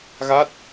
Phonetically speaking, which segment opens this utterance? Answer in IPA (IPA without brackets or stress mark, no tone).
ɣ